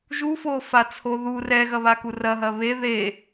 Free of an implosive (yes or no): yes